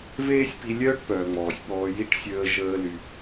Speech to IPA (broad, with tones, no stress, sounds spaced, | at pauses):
v eː˥ sʲ p i˧ lʲ œː˥ ʈ p œː˩ ŋ͡m ɔː˩ sʲ ɓ ɔː˧ j i˥ ʈ sʲ əː˧ ʒ əː˧ l y˩